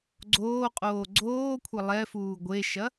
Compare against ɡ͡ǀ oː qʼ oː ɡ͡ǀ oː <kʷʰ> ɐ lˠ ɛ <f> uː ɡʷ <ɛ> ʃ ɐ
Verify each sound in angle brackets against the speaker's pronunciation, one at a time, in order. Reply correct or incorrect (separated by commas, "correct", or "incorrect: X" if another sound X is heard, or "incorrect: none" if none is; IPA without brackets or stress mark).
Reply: correct, correct, incorrect: e